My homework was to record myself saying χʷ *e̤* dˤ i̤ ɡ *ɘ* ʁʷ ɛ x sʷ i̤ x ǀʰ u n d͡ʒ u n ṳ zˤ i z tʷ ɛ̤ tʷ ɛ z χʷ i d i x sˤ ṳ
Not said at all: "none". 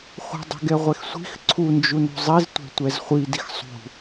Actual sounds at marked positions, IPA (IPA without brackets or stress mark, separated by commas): i̤, ɛ